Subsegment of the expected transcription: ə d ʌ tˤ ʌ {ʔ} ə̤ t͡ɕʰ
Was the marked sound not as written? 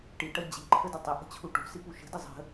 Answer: no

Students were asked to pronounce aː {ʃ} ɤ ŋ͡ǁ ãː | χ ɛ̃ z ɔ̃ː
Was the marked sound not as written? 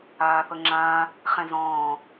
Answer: yes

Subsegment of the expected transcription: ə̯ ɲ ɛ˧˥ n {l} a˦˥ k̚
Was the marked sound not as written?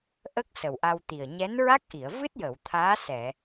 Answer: yes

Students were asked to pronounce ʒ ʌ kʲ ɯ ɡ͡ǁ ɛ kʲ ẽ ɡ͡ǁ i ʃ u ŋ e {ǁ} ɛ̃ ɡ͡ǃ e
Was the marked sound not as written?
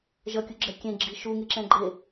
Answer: no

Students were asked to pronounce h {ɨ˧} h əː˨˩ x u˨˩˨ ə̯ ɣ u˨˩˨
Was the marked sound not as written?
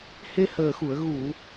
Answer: yes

